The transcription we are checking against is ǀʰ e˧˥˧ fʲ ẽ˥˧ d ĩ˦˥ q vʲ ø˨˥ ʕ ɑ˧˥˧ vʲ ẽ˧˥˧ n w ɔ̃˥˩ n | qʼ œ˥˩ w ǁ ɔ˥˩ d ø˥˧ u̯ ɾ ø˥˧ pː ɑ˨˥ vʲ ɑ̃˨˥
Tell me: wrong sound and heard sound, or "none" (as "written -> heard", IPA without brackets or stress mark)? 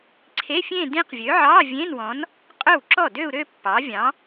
ɔ̃˥˩ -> ɔ̃˨˥